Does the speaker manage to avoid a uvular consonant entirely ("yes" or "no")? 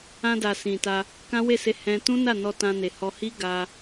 yes